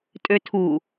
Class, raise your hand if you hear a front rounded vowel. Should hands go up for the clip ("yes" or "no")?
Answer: yes